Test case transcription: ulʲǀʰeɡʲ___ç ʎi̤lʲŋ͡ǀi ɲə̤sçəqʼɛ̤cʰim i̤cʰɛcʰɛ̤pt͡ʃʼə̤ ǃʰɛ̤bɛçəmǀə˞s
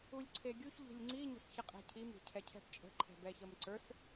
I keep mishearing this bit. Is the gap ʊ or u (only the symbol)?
u